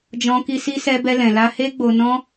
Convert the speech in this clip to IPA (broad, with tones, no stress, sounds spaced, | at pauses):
d͡ʒ ɔ̃˧ k i˧ s i˦ s ɛ˦ b ɛ˦ l ɛ̃˧ l a˧ h e˦ ɡ͡b o˧ n ɔ̃˦